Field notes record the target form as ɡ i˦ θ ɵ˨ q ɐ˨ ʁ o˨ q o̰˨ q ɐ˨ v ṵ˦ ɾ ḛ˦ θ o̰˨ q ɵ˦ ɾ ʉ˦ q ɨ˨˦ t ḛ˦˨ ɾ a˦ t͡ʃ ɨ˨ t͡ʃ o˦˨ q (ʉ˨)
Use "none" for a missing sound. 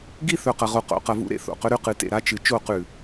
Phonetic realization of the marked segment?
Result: ʉ˨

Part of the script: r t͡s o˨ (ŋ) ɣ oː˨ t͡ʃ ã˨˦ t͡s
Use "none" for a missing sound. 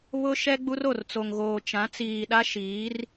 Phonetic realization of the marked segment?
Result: ŋ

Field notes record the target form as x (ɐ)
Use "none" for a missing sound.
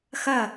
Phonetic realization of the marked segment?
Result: ɐ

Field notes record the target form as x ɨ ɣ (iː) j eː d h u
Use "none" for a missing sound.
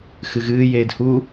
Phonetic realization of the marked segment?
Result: ɨː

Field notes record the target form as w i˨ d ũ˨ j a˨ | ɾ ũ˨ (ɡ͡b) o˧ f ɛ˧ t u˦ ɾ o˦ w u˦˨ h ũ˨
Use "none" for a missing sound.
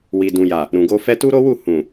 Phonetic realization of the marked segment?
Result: ɡ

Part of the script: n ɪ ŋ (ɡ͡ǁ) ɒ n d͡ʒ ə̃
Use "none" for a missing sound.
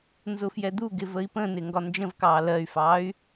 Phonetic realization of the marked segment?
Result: ɡ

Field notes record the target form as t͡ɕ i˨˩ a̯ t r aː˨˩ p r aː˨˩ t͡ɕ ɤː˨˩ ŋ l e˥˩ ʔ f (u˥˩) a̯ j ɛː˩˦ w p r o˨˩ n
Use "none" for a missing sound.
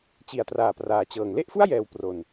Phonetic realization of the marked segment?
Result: u˥˩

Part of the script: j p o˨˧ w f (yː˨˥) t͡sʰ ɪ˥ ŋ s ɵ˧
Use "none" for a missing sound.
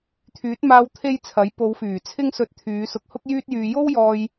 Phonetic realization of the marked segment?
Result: yː˨˩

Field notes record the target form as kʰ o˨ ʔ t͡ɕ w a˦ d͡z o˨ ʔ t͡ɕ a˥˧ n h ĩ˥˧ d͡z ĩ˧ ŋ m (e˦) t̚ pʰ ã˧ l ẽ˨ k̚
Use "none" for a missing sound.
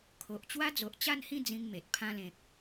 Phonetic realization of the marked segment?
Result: e˨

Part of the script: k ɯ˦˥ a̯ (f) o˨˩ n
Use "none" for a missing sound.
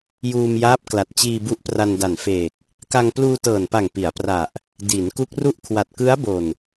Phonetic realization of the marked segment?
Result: b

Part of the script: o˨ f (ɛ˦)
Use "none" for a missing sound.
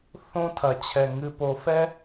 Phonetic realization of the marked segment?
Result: ɛ˦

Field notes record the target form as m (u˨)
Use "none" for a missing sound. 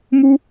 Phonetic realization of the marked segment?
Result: u˦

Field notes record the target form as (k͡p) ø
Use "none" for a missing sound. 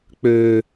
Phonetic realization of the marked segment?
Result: k͡p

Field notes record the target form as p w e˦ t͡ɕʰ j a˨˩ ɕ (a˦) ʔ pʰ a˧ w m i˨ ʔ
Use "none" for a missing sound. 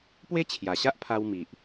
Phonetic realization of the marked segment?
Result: a˦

